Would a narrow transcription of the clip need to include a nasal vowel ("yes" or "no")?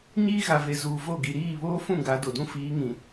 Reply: yes